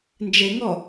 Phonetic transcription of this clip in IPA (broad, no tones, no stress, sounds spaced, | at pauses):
n d͡ʒ e ŋ ɔ